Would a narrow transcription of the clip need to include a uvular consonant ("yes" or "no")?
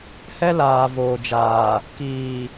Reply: no